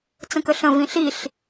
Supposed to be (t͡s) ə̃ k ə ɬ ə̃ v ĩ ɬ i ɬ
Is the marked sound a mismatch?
no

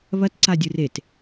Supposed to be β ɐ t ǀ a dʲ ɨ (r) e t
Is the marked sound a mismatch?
no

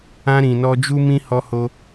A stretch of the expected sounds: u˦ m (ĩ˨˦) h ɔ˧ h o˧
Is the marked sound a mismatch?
yes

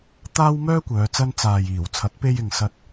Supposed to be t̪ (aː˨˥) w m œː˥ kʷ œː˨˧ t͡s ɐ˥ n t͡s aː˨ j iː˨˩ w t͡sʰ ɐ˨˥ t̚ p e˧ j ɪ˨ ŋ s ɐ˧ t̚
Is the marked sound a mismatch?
yes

